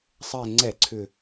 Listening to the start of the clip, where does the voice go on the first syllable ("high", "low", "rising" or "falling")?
low